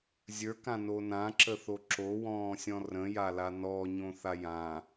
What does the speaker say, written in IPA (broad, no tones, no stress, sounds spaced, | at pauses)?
zʲ ə˞ k ã n o n ã ǁ ə θ o ǁ o w ɔ̃ː sʲ ɔ̃ r ə̃ j a l a n ɔ ɲ õ θ a j ã